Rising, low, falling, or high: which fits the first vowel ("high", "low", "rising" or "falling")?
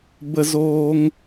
high